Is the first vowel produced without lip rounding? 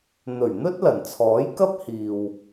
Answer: no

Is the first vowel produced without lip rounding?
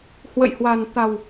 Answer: yes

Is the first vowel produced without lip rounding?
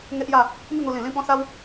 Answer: yes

